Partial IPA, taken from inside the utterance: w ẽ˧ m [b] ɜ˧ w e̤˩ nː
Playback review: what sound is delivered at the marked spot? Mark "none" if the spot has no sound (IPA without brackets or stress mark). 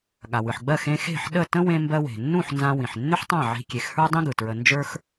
b